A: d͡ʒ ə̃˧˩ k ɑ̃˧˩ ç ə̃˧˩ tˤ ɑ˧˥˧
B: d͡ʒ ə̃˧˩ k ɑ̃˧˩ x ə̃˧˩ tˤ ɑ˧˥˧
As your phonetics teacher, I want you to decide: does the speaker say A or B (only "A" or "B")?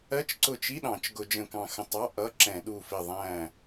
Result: B